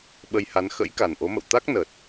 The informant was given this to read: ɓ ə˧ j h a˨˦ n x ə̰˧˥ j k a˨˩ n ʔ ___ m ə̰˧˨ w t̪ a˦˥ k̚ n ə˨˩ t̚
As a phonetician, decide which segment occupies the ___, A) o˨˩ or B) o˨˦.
B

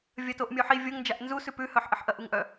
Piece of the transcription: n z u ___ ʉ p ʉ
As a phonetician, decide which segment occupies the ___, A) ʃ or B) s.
B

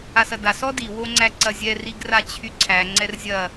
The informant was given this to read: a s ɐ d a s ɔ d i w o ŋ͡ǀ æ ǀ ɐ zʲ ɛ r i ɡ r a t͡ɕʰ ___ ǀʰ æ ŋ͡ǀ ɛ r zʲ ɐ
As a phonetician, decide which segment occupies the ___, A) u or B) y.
B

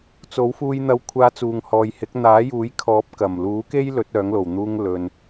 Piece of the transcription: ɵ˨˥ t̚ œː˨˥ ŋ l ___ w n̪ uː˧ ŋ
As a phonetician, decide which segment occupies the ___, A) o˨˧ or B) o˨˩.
B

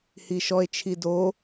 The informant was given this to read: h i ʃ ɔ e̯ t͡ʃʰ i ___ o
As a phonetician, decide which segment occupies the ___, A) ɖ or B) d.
B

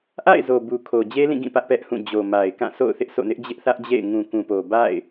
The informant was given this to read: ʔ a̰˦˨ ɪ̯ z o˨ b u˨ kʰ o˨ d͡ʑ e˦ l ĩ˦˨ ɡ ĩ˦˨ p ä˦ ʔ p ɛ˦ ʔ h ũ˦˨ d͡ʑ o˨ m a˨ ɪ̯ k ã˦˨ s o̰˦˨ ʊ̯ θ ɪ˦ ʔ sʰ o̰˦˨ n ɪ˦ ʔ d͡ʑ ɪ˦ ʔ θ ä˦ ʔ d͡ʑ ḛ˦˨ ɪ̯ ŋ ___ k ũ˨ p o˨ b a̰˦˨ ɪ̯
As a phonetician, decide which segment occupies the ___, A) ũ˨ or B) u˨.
A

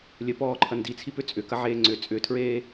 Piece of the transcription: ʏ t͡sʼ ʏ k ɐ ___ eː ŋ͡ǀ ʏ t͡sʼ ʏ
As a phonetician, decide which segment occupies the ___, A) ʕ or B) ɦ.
A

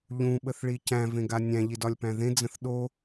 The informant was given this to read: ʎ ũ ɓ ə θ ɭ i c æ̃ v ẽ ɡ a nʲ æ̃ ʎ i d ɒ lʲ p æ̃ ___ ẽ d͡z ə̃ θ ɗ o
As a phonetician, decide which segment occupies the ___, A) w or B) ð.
B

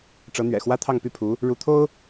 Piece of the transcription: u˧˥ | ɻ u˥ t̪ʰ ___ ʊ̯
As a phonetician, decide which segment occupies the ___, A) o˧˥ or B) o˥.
B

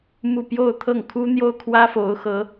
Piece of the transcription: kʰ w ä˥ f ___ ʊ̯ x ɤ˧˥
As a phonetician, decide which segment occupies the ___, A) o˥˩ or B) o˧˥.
B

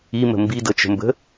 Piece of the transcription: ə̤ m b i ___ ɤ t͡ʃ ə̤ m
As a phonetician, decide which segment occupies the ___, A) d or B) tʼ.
A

